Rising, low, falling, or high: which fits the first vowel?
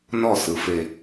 falling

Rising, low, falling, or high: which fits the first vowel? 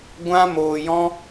high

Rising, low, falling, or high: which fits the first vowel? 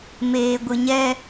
low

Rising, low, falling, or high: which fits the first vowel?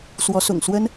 rising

